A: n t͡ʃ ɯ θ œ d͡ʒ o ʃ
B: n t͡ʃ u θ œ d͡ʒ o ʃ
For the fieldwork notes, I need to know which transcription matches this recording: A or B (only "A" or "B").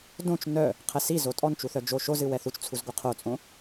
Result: B